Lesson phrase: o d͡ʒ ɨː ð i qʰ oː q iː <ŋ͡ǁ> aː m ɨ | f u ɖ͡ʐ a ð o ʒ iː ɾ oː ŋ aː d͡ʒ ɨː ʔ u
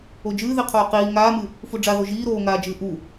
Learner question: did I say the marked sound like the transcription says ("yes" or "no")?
no